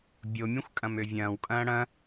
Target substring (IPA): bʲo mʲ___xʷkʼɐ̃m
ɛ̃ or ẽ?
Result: ɛ̃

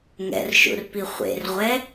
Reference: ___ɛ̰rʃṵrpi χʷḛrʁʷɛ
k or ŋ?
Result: ŋ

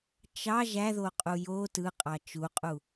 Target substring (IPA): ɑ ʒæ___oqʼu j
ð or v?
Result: ð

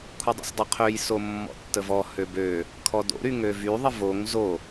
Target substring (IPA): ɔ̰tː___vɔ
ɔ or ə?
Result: ə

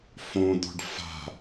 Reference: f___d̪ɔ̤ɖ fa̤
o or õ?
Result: õ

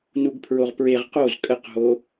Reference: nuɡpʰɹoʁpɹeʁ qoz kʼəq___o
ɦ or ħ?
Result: ɦ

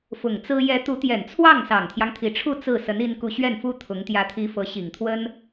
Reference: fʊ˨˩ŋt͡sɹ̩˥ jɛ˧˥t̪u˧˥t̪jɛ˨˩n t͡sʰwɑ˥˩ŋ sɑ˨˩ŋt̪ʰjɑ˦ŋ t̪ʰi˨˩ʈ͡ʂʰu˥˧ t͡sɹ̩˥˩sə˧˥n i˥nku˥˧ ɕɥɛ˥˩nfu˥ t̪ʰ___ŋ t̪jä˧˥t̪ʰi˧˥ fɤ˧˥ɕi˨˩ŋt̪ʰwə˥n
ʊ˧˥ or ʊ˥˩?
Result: ʊ˧˥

